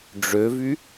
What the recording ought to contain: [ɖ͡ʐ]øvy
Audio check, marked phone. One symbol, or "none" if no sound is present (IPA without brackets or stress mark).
ɖ͡ʐ